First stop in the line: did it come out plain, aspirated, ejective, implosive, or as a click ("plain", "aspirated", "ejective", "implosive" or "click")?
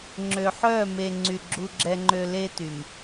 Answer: click